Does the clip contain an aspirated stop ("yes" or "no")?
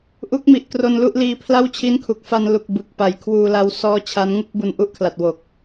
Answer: yes